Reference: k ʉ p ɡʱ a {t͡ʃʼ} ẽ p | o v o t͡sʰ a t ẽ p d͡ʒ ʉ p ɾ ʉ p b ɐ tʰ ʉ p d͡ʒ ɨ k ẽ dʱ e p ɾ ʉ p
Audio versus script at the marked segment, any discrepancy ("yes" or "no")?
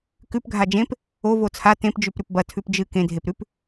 yes